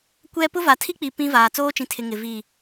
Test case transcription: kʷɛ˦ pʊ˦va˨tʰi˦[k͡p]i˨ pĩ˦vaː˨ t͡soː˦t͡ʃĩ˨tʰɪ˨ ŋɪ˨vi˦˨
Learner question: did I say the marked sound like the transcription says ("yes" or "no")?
yes